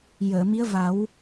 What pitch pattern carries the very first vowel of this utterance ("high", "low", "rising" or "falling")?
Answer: low